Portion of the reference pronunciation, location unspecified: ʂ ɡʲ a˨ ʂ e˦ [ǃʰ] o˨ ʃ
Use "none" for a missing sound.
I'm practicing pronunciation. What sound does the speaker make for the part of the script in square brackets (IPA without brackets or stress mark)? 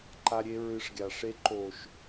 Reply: ǃ